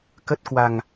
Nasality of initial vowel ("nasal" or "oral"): oral